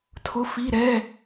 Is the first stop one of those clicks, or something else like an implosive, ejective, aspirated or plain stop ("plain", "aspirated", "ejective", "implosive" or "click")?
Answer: aspirated